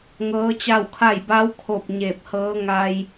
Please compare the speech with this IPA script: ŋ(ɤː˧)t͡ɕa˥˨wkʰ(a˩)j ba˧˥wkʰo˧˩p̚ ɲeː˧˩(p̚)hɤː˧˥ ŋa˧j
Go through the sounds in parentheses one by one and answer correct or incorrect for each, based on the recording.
incorrect: ɤː˧˥, incorrect: a˥˨, correct

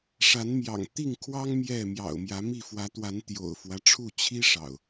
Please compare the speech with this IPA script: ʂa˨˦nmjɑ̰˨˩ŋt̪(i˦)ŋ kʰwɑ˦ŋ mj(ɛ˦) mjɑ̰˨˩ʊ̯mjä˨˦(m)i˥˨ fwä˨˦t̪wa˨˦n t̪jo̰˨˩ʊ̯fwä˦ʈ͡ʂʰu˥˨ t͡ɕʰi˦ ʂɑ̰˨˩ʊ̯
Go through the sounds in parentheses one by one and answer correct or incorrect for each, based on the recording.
incorrect: i˥˨, incorrect: ɛ˥˨, correct

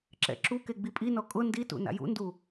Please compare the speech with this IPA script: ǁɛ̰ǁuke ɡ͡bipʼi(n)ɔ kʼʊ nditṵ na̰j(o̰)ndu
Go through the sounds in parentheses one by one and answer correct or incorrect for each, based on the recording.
correct, incorrect: ṵ

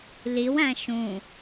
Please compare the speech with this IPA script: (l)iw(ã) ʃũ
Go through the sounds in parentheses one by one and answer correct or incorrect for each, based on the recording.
correct, incorrect: æ̃

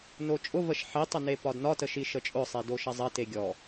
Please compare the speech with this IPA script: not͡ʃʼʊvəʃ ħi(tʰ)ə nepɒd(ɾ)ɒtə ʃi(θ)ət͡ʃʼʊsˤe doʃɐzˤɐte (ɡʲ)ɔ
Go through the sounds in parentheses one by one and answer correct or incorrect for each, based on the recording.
incorrect: tˤ, incorrect: n, incorrect: ʃ, correct

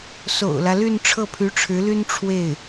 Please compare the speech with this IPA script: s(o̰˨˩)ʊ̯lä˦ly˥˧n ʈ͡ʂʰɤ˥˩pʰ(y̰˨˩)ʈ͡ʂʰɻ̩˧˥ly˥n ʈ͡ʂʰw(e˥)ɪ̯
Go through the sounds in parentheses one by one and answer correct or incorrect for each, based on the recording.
correct, incorrect: y˧˥, incorrect: e˥˩

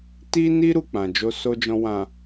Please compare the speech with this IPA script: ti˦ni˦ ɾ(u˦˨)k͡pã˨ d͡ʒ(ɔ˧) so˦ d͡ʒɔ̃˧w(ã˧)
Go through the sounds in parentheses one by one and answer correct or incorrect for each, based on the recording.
correct, incorrect: o˧, incorrect: ã˨

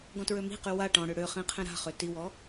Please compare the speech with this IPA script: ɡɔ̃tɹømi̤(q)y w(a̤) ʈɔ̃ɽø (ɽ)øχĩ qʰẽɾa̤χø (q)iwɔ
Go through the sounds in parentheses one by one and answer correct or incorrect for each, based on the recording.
correct, incorrect: a, correct, incorrect: t

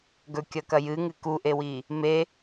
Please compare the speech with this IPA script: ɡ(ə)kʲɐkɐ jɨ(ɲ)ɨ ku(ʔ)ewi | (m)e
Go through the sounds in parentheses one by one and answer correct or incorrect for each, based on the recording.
incorrect: ɵ, incorrect: ŋ, correct, correct

